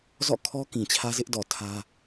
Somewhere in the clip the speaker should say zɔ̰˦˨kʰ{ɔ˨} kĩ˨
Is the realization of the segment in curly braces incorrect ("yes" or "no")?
yes